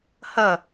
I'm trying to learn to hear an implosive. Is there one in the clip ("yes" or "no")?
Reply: no